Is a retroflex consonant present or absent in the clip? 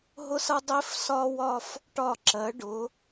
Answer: present